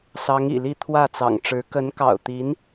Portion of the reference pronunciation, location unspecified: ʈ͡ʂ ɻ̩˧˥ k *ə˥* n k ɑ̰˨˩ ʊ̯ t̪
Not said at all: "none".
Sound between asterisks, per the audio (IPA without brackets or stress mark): ə˧˥